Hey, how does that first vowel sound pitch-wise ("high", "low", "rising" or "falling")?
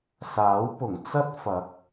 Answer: rising